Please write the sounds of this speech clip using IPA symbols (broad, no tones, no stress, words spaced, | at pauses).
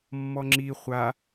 mːɔŋ͡ǁi χʷa